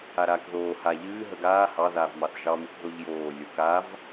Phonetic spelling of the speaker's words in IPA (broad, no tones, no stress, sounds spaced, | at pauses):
a ɾ aː k ð oː h a ʎ ɨː ɦ ə ɡ aː h ɑ ð aː v m ɑ θ ʒ ɑ m ɨ k ð o ʎ j oː lʲ o k a v